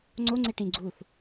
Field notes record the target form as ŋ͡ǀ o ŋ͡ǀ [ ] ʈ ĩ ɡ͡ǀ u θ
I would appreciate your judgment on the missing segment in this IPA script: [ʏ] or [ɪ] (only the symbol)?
ɪ